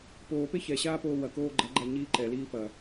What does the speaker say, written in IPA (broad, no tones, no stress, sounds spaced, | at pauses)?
p oː p e ç ɛ ɕ aː p oː w ɐ k oː ɡ͡ǃ ɐ ɡ͡ǃ a ɲ iː ǃ ɛ l iː p ɐ